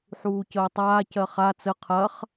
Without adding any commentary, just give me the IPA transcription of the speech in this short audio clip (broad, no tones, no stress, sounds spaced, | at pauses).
ħ uː c əː tˤ aː c ɜ χ a t͡s ə qʰ ɐ χ